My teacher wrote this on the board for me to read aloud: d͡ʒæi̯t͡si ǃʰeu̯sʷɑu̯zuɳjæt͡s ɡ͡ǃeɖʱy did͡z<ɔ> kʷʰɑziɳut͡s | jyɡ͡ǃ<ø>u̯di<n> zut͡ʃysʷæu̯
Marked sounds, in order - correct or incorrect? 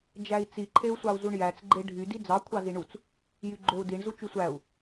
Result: incorrect: ɑ, correct, incorrect: ɳ

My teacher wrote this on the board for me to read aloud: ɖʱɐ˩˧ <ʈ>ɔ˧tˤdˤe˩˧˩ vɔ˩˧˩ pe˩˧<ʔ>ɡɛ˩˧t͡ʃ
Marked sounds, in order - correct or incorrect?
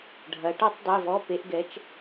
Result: correct, correct

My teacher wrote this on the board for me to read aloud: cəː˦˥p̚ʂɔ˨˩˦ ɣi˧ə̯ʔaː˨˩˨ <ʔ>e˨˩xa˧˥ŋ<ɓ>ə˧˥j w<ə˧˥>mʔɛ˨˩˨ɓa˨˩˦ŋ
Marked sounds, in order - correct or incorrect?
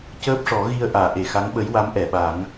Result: correct, correct, incorrect: a˧˥

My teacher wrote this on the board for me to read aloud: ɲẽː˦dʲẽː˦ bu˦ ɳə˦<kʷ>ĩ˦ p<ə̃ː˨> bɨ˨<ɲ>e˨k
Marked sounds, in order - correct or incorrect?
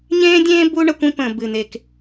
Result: correct, correct, incorrect: n

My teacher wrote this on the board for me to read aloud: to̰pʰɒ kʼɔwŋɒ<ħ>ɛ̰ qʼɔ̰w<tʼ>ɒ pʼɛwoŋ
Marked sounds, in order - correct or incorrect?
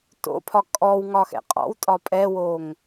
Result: incorrect: x, correct

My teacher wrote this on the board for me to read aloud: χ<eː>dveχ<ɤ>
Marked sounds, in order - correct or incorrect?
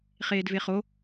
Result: correct, incorrect: o

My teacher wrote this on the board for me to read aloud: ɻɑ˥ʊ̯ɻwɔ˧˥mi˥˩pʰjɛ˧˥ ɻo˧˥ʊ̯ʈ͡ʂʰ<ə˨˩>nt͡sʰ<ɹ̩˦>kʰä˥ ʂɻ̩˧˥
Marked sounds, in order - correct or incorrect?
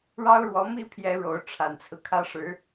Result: incorrect: a˨˩, correct

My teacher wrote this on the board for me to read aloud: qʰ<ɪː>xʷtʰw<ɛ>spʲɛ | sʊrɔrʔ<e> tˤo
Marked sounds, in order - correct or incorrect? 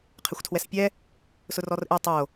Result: incorrect: ɪ, correct, correct

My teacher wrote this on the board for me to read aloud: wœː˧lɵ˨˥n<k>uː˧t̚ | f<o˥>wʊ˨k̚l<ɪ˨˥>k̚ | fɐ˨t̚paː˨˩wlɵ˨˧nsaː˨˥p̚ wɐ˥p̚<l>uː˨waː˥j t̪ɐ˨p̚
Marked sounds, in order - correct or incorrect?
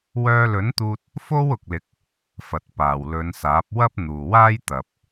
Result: incorrect: t̪, correct, correct, incorrect: n̪

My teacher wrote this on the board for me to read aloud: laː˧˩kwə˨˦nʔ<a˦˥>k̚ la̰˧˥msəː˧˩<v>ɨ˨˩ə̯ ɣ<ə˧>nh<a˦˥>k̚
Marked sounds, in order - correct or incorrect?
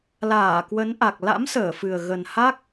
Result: incorrect: a˨˩, incorrect: f, incorrect: ə˨˩, correct

